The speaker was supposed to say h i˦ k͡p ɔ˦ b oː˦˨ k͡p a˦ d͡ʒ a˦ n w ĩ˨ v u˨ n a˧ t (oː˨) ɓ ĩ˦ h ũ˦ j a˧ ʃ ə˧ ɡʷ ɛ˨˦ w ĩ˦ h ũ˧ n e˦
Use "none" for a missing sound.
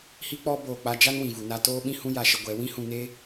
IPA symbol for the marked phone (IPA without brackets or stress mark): oː˦